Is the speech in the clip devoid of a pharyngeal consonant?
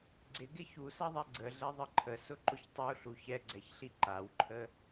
yes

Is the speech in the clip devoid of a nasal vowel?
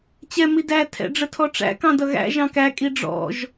no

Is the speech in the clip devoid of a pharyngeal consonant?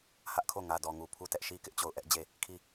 yes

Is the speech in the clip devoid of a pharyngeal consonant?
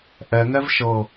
yes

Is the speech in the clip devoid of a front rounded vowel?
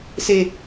yes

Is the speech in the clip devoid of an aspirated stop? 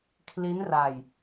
no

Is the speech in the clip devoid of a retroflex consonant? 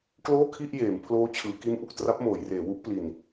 yes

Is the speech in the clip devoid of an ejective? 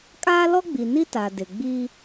no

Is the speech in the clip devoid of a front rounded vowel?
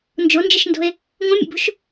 yes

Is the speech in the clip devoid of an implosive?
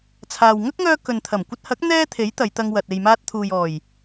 yes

